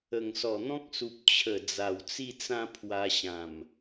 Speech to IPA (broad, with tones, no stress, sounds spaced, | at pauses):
ə˨˩ ŋ s ɔ˨˩ n̪ ɔ̃˦ k̚ s u˨ p̚ t͡ɕʰ ə˨˩ d͡z a˨˩ w t͡s i˥˧ t͡s ã˥˧ pʰ w a˧ ɕ ã˨˩ m